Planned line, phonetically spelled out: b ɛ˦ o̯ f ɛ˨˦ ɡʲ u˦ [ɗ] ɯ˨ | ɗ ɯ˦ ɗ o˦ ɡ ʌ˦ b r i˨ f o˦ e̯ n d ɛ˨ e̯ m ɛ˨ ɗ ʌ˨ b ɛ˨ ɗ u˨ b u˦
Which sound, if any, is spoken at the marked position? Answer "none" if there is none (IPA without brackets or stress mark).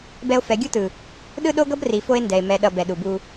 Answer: t